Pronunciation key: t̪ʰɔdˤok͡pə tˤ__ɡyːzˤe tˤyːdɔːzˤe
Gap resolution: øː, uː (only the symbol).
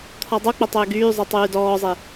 øː